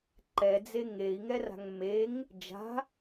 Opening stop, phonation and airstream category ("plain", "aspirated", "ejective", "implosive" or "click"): click